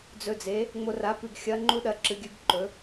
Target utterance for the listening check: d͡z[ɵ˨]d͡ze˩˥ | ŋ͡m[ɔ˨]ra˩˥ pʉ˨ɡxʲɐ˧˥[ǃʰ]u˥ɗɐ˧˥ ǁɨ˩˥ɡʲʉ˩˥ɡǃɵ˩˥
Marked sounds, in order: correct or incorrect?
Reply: correct, incorrect, incorrect

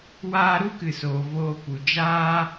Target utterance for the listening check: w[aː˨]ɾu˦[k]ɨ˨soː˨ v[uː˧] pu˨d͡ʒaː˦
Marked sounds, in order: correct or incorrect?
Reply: incorrect, correct, incorrect

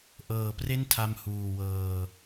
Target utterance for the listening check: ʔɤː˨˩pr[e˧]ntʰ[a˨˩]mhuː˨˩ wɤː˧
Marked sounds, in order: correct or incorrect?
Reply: incorrect, incorrect

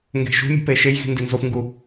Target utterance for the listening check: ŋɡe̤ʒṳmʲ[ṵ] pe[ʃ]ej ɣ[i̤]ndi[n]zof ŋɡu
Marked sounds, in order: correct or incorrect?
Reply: incorrect, correct, correct, correct

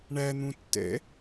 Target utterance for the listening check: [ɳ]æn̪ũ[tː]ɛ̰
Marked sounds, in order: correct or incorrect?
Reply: correct, correct

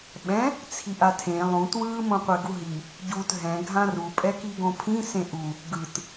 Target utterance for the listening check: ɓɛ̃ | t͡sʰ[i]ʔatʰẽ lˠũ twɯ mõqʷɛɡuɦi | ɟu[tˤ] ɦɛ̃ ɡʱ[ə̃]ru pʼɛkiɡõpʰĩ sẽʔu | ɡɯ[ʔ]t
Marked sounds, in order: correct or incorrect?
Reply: correct, incorrect, incorrect, incorrect

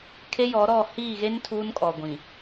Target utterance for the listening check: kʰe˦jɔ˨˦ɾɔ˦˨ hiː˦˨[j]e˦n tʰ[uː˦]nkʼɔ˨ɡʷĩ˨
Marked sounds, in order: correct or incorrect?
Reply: incorrect, correct

